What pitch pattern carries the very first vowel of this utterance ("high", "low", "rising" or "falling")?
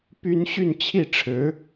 high